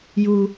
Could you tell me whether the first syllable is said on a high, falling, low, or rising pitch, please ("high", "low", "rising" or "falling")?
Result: low